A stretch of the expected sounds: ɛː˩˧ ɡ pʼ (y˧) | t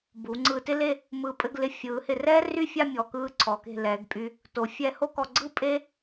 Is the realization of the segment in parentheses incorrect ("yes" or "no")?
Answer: no